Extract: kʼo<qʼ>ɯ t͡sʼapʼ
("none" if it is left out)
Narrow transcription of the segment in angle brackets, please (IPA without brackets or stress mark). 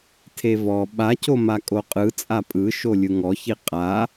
qʼ